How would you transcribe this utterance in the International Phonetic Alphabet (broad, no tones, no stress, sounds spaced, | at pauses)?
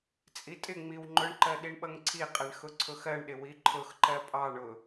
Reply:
t͡sʼ i tʼ ɪ ŋ͡m i w ŋ͡ǃ ʊ ɳ ǃ ɜ ɗ i ɳ ɓ ʌ ŋ ǀʰ i qʼ ɛ ɳ x ʊ ǀʰ ʊ x ɜ ɳ ɗ ɪ w i ǃʰ ʊ x ǃ ɜ pʼ ɑ ɳ ʊ